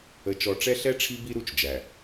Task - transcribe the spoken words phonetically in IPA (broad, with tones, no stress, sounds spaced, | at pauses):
ə˨ t͡ʃ ɔ˨ ʈ͡ʂ ɛ˦ ɬ ɛ˦ ʈ͡ʂʰ i˦ b i˦ ɾ u˦ t͡ʃ d͡ʒ æ˨